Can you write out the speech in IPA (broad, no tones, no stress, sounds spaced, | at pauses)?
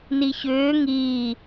n i ç ʏː ŋ iː